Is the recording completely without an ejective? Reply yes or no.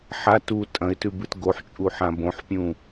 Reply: no